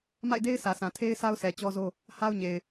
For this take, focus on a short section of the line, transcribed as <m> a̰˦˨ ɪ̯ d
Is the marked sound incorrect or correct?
correct